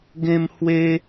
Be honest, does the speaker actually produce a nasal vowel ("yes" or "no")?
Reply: yes